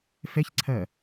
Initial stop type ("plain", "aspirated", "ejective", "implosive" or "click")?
click